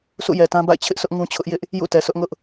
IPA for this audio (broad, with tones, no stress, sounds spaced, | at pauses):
s ṵ˦˨ j ɛ˨ t ã˦ b a̰˦˨ ɪ̯ t͡ɕʰ ɪ˦ ʔ sʰ ʊ˦ ʔ ŋ ũ˦ t͡ɕʰ ʊ˦ ʔ j ɪ˦ ʔ | j ṵ˦˨ t ɛ˨ sʰ ʊ˦ ʔ ŋ ʊ˦ ʔ